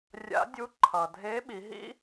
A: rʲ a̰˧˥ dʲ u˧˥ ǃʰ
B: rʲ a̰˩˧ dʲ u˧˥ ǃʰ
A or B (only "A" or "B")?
A